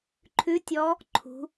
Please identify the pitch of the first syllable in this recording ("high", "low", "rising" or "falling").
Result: rising